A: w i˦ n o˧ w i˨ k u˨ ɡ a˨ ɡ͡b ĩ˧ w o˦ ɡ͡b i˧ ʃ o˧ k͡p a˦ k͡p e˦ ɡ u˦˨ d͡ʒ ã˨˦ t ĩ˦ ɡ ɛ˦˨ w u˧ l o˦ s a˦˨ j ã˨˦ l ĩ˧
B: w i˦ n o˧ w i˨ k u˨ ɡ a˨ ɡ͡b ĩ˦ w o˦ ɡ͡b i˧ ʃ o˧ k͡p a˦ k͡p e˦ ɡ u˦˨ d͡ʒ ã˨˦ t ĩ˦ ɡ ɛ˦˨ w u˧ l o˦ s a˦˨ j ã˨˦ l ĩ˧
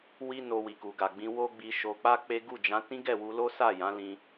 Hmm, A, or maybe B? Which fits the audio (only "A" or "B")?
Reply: A